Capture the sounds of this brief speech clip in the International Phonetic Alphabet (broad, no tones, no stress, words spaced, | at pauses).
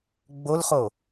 ɡ͡bolχo